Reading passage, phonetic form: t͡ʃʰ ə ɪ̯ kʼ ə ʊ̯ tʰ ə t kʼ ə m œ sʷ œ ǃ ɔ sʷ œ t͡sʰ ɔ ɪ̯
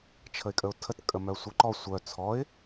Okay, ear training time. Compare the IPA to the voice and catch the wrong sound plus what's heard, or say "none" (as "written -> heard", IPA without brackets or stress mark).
none